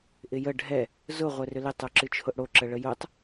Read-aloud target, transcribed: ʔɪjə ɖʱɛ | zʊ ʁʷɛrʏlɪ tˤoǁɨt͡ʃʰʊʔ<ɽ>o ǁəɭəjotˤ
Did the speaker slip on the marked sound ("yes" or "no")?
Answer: no